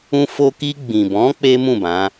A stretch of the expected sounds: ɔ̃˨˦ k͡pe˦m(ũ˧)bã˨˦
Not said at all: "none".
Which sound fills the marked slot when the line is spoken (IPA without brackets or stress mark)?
ũ˦˨